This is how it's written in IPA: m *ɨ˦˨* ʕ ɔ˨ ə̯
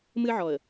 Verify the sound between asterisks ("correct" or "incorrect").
incorrect